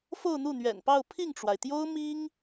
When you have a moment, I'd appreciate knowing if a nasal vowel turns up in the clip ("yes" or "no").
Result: no